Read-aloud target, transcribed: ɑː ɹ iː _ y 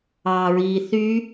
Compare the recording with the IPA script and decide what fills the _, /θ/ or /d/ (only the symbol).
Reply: θ